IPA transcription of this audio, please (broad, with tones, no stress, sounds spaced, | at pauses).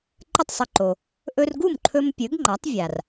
ǃ ə˥˩ tˤ sˤ ə˧ ǃ o˩ | ʔ ɵ˧ r ɡ u˥˩ m ǃʰ ɵ˧ m pʲ ɵ˩˥ ɡ ŋ͡ǃ a˩˥ tˤ vʲ a˩ r